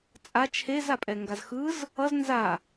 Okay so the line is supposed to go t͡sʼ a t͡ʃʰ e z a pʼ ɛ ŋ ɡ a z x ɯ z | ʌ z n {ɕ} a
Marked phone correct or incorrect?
incorrect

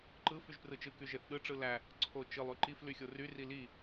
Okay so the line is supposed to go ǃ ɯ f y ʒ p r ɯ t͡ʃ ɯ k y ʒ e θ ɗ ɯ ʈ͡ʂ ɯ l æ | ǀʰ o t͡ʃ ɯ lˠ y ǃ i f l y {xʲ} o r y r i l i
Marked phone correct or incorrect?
correct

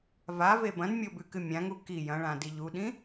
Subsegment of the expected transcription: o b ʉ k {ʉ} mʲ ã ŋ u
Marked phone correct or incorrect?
incorrect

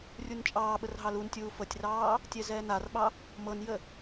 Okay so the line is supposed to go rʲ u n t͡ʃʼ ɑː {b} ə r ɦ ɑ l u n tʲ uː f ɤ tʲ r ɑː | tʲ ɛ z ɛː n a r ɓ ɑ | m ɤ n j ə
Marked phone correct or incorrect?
incorrect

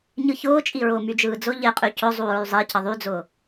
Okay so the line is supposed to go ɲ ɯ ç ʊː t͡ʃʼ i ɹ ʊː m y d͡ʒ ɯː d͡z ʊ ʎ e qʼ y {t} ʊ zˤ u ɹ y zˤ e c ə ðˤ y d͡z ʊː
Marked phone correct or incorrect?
incorrect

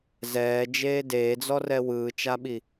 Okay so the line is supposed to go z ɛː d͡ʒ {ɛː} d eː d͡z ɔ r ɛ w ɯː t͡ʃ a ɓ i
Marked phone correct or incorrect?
incorrect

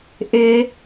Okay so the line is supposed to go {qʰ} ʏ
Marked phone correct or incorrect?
incorrect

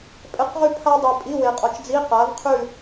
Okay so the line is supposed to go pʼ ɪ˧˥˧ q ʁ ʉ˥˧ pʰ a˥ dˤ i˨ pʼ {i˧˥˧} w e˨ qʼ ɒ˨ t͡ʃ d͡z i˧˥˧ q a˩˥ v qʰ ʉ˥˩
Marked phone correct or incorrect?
correct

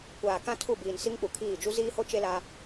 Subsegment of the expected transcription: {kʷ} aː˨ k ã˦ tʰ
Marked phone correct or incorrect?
correct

